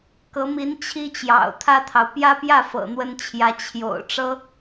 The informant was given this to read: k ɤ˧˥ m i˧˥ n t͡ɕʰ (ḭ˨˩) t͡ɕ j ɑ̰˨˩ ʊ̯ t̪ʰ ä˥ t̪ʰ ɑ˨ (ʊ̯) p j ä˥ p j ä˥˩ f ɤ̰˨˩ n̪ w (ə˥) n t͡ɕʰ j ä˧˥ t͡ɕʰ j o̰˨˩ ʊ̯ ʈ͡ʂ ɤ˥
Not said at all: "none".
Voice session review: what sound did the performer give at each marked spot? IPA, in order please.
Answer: i˥, ʊ̯, ə˥

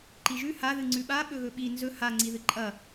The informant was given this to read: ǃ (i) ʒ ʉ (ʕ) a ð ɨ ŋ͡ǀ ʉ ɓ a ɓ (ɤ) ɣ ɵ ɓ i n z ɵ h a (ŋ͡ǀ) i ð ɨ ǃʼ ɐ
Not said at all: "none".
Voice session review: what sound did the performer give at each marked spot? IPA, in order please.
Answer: i, h, ɵ, ŋ͡ǀ

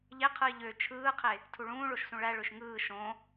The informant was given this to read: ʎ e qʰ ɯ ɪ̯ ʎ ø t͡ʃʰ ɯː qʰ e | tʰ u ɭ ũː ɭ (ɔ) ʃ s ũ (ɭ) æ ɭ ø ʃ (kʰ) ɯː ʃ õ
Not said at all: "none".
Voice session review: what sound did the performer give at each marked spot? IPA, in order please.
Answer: o, ɭ, ŋ

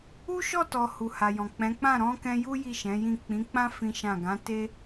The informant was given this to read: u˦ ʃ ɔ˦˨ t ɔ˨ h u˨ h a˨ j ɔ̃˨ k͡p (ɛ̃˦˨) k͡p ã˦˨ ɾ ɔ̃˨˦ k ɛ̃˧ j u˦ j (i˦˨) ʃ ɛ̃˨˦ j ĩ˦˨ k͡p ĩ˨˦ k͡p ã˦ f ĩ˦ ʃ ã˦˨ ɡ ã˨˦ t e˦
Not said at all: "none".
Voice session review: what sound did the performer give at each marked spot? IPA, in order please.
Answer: ɛ̃˨˦, i˦˨

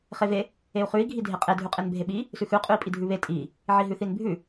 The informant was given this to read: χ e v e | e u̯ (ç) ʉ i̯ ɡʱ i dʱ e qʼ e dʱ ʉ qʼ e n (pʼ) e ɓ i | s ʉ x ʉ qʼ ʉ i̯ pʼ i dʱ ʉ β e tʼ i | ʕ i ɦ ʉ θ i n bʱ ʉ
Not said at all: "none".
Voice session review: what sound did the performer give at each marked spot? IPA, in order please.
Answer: χ, bʱ

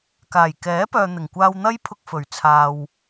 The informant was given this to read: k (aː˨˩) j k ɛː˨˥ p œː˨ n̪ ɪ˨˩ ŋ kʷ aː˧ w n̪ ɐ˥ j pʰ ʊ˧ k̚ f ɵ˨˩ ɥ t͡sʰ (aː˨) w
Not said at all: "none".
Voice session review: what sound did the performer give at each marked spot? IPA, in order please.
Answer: aː˨˩, aː˨

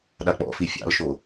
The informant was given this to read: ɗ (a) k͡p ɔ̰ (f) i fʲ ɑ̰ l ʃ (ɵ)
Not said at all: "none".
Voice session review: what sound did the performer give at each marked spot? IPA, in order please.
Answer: a, f, o

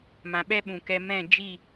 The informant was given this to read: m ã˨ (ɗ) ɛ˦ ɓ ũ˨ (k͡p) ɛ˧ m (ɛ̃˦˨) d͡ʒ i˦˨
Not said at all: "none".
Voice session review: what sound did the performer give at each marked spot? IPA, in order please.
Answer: ɓ, k, ɛ̃˦˨

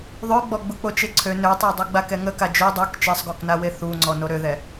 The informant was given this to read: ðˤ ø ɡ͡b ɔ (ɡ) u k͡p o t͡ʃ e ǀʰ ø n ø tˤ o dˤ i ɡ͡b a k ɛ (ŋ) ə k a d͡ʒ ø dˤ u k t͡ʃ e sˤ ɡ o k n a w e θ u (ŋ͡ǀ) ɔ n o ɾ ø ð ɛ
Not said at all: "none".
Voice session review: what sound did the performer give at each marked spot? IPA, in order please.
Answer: ɡ͡b, ŋ, ŋ͡ǀ

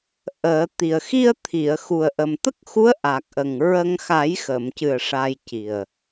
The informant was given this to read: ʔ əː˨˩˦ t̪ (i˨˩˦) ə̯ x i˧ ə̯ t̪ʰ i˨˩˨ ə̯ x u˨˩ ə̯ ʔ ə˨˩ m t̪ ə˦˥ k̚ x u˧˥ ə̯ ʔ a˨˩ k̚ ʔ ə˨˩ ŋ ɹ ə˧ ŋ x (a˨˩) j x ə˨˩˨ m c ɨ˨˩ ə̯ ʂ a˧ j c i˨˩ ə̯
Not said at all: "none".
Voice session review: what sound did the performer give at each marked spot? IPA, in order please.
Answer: i˨˩, a˨˩˦

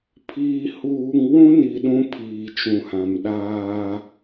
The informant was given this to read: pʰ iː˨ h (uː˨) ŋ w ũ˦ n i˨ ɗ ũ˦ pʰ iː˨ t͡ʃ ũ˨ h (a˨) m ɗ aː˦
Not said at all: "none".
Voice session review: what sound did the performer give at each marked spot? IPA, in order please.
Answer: uː˨, ã˨

